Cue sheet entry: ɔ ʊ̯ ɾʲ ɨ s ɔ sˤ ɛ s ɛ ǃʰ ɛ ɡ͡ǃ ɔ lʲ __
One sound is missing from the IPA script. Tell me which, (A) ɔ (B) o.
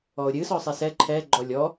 A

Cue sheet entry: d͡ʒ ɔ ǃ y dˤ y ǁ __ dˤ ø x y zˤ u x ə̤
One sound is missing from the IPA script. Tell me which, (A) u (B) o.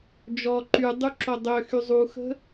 B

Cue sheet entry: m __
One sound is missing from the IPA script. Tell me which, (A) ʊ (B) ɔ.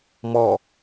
B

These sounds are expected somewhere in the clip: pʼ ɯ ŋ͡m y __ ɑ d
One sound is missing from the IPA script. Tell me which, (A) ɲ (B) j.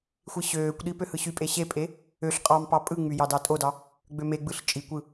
B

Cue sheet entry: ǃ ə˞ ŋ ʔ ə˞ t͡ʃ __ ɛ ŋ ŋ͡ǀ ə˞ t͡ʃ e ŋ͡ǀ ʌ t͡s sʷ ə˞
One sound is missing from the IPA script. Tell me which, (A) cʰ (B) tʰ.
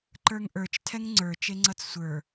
B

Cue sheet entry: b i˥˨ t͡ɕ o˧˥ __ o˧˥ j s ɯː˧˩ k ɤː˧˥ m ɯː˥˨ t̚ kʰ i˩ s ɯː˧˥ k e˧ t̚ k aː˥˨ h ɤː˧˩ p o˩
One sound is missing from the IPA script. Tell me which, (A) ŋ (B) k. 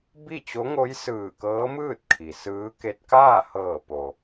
A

